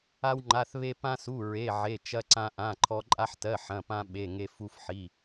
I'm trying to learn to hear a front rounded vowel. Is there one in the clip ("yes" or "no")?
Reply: no